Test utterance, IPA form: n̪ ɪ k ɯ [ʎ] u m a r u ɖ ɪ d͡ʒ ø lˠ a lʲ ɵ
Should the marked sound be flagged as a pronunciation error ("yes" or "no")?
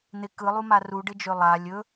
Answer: yes